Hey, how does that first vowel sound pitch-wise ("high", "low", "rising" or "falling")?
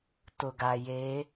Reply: low